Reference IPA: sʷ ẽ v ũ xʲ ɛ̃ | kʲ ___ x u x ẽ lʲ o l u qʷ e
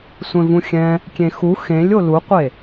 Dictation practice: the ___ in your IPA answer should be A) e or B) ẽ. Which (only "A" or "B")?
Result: B